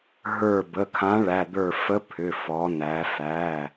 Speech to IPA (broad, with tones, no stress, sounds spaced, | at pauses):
ɦ ə˞˧˩ b ə˩˧˩ kʰ ã˨˥ ɭ æ˩˧˩ d̪ ə˞˧˩ f ə˨˥ pʰ ʏ˩˧˩ f ɔ˩˧ n æ˩˧ f æ˩˧˩